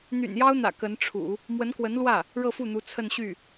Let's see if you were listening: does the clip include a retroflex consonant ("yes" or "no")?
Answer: yes